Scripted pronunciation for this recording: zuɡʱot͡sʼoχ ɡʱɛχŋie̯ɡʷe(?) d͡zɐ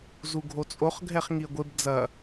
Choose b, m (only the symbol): b